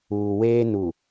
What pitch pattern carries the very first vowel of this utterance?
low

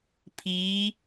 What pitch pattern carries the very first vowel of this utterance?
rising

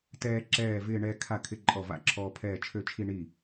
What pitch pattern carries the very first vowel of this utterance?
falling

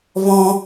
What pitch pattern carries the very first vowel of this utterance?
high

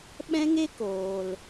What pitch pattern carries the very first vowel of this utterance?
high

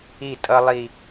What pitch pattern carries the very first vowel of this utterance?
falling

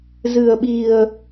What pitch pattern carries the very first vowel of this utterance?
low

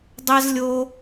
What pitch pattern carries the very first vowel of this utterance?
high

